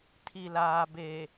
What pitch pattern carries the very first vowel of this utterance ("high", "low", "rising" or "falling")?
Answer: low